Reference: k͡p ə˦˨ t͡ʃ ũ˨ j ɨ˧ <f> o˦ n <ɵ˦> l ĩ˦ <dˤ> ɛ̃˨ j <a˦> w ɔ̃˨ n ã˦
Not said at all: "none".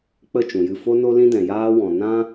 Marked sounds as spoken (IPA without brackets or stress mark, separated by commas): f, o˦, d, aː˦